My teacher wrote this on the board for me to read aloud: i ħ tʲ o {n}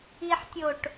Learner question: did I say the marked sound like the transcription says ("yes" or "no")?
no